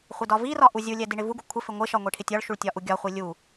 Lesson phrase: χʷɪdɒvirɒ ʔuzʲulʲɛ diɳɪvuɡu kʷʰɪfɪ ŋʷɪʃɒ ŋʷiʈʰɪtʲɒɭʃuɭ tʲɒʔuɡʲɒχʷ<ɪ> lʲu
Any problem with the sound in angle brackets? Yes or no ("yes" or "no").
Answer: yes